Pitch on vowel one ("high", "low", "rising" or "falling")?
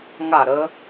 falling